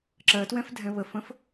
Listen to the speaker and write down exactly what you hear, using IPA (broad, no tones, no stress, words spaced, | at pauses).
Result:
ǁɜtwɛ̃fdʱɛ̃ βəfə̃f